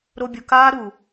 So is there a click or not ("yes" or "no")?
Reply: no